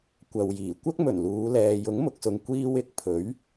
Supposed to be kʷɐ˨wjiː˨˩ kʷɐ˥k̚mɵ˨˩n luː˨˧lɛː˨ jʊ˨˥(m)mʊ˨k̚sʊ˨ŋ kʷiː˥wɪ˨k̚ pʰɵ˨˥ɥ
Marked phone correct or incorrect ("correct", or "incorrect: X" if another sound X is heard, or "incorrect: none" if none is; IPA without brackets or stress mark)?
incorrect: ŋ